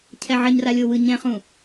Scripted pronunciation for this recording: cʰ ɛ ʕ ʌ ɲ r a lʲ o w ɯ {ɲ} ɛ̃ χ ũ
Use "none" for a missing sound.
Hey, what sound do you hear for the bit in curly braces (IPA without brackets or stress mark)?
ɲ